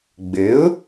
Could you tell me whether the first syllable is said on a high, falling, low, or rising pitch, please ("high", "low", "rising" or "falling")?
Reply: rising